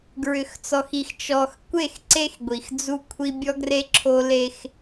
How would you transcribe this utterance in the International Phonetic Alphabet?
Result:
ɡ ɹ ʏ˨ x t͡s ɔ˨ x i˨ x t͡ʃ ɔ˨ x kʷ e˦˨ x ǀ e˦ x ɡʷ i˨ x d͡z u˦ kʷʰ i˦ bʲ ɔ˦ ɡ r e˦ ǁʰ o˦ l e˦ x

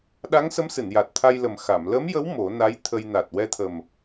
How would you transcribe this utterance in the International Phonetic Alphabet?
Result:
ɗ a˧˥ ŋ s ə˧˥ m s ɨ˨˩˨ n j a˨˩ t̚ t̪ʰ a˧ j l ə˨˩ m x a˨˩˨ m l ə˧˥ m j ə˧˥ w m o˨˩˦ n a˧˥ j t̪ʰ ə˧ j n a˨˩ t̚ w ɛ˧ t̪ʰ ə˨˩ m

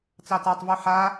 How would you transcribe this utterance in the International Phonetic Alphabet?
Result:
t͡s ɑ t a tˤ v ʉ ħ a

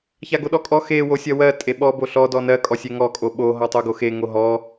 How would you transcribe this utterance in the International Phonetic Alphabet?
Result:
ç a ɡ o ɗ ɔ kʼ ɔ x e w o sʲ ɜ w ɜ tʼ e ɓ ɔ b o ɬ ɔ d ɔ n ɜ kʼ ɔ sʲ e ŋ ɔ kʼ o ɓ o ɦ ɔ tˤ o ɡ o x e ŋ o ɦ ɔ

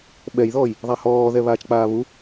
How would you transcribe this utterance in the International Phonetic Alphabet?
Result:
ɓ ɛ j ð ɔː j | ðˤ a h ɔː ð ɛ β aː t͡ʃ k͡p aː β u

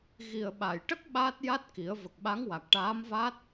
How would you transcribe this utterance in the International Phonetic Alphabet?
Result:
ɣ i˨˩ ə̯ ɓ a˨˩˨ j ʈ ə˦˥ k̚ ɓ aː˦˥ t̚ j a˦˥ t̚ k i˨˩˦ ə̯ v ə˨˩ k̚ ɓ a˧˥ ŋ w a˨˩ k̚ ʈ aː˧˥ m v aː˦˥ t̚

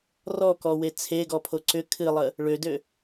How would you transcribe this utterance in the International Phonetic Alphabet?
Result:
r ɔ k ɔ w e t͡sʰ e ɡ ɔ pʰ o ǀ ʏ kʰ ɨ lˠ ə | ɭ ø d ø

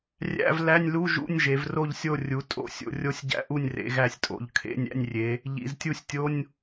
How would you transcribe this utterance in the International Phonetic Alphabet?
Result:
rʲ æ̰˧˥˧ v l æ˧˥˧ nʲ l u˧˥˧ ʒ ṵ˧˥˧ nʲ ʒ e˩˧ v r o˦˨ ʎ sʲ o˦˨ rʲ u˩˧ tʼ o̰˧˥˧ sʲ o̰˩˧ rʲ o˦˨ sʲ ɟ æ̰˧˥˧ ʔ u˦˨ nʲ r ḛ˩˧ ɣ æ˦˨ sʲ tʼ o̰˩˧ ʎ kʰ ḛ˧˥˧ nʲ æ̰˧˥˧ nʲ rʲ e˩˧ | ʎ ḭ˩˧ z tʲ u˦˨ sʲ tʲ o˧˥˧ nʲ

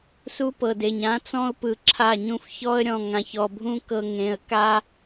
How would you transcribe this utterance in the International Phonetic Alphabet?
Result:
s u˦ p ɤ˨ d e˨ ɲ ã˦ t͡s ɔ̃˦ ʊ̯ p ɯ˨ ǁʰ a˦˨ ɲ ũ˦ f ç ɔ˦ ə̯ ɾʲ ɔ̃˨ ŋ ã˨ ç ɔ˨ bʱ ũ˦ k ɤ˨ ŋ ẽ˨ ə̯ k a˦

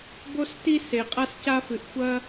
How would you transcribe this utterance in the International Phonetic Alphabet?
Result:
b o˦ s t i˦ s e˧ qʼ a˦ s c a˦ f ɨ˧ ʔ xʷ ɐ˦

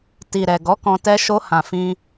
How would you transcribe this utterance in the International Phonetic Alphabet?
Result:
t i˨ ɾ ɛ˨ ɡ ɔ˨˦ k ɔ̃˧ t ɛ˧ ʃ o˧ h ã˨ f ĩ˧

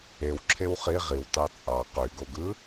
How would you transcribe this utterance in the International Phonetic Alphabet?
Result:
e w ǁʰ e w χ i ʁ i w t ɑ t͡sʼ ɑ q y ɡ o ɡ ɯ

